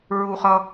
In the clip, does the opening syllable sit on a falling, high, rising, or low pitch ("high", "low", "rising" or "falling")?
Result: low